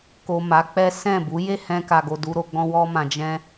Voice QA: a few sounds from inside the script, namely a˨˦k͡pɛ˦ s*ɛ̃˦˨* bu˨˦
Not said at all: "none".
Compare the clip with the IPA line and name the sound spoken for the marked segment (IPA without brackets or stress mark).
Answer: ɛ̃˦˨